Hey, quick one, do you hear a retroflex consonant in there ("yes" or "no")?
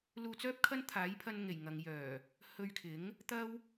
no